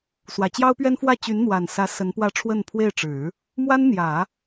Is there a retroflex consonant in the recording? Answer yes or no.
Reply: yes